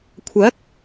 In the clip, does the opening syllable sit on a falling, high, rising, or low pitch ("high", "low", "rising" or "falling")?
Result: rising